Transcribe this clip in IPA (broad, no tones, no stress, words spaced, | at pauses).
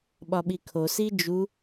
ɓɒɓikʰo sid͡ʒu